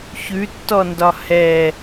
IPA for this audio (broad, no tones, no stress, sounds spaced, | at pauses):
ç ʉ tː ɔ n d ɒ h ɛ